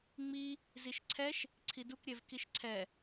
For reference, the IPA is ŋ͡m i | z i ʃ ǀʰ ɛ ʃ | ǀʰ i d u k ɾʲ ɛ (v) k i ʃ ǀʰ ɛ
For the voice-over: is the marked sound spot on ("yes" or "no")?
yes